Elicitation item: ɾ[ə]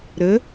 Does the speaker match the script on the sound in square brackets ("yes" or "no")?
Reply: yes